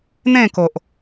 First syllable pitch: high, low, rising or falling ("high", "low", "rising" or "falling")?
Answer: falling